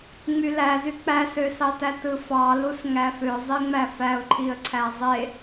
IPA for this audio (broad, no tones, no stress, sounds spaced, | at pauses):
ŋ͡m y l æ z y k͡p æ s ø s ɑ t æ t ɯ f ɑ l u s ŋ æ f ø zˤ i ŋ͡m æ f æ ʊ̯ ǃʰ i ə̯ ǀʰ æ zˤ e